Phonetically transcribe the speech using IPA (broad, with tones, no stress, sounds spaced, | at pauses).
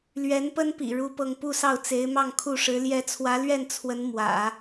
l ɥ ɛ˧˥ n p ə˥ n p ḭ˨˩ ɻ u˥ p ɤ˥˧ ŋ p u˥˧ s ɑ˥˩ ʊ̯ t͡s e˧˥ ɪ̯ m ɑ˥˧ ŋ kʰ u˥˩ ʂ ɻ̩˧˥ l j ɛ˧˥ t͡sʰ w ä˧˥ l ɥ ɛ˥˩ n t͡sʰ w ə˧˥ n m w ä̰˨˩˦